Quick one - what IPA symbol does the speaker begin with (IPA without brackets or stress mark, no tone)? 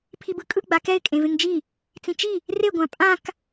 pʰ